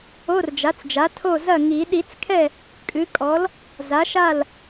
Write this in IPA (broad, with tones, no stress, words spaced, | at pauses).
o˧˥˧rd͡ʒa˩˥t͡sd͡ʒa˩˥ tʰo˥˩ zɐ˥˩ ŋi˨˩˦ ɗi˨˩˦t͡skʰɛ˥˩ | kʼɨ˩˥kʼɔ˩˥l | za˩˥ʃa˥˩l